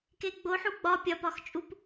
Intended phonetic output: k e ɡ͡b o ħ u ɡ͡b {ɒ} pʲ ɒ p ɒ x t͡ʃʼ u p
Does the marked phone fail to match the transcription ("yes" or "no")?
no